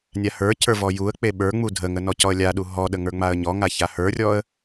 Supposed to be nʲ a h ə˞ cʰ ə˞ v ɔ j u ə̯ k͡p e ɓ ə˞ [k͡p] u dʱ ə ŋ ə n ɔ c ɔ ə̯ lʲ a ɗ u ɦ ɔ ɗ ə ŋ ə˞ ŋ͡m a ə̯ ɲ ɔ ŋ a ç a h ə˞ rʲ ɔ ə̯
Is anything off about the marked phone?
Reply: yes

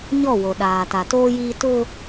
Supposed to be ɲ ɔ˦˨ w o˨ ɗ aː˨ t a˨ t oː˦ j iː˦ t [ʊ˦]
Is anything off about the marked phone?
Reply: no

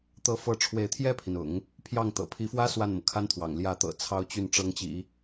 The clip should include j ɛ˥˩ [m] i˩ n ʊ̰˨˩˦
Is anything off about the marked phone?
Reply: yes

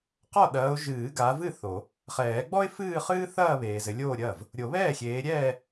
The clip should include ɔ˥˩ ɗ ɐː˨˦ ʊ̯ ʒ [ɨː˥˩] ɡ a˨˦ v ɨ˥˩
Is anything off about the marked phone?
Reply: yes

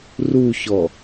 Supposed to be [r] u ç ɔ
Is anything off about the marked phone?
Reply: no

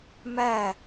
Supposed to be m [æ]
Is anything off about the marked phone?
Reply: no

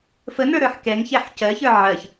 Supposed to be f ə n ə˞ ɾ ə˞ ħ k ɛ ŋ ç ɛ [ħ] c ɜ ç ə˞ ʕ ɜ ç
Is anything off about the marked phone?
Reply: no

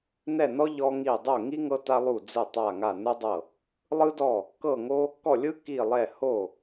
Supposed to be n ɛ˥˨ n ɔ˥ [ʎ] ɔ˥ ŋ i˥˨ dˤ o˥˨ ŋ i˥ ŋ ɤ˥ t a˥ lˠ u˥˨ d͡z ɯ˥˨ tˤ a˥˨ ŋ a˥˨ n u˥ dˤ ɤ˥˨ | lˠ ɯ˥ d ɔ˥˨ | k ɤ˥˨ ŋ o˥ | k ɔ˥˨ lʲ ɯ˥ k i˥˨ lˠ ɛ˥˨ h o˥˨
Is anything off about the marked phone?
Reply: no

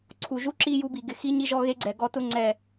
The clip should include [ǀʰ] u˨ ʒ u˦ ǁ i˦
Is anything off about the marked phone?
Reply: no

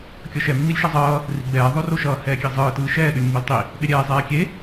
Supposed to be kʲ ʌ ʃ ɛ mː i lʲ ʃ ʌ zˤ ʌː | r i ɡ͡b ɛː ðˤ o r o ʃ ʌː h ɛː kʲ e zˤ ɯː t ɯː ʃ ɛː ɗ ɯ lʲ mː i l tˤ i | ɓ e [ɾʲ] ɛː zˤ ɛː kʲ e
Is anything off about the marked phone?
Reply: no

